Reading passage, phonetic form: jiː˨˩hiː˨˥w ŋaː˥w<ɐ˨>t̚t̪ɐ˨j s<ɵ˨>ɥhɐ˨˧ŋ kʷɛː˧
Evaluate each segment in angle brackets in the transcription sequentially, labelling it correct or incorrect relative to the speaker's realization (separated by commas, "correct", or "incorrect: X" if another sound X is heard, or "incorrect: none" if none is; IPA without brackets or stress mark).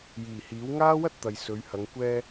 incorrect: ɐ˥, incorrect: ɵ˨˧